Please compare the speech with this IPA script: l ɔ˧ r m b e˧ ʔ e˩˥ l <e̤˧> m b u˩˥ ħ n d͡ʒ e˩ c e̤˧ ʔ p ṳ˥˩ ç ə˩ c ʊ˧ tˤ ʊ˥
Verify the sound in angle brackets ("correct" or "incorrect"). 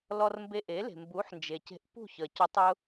incorrect